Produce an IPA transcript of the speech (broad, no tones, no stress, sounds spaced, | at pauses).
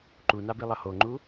ǃ u n a b i lˠ ʌ h o ŋ͡ǃ u